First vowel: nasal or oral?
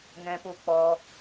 nasal